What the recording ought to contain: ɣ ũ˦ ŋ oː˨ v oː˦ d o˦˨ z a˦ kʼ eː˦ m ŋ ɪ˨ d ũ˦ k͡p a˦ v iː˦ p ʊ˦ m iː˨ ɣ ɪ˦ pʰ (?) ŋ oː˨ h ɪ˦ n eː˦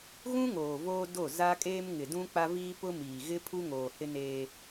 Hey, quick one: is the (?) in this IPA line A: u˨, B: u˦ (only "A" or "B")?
B